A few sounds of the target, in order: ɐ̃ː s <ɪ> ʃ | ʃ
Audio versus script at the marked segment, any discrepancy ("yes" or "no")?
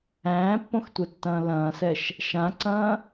yes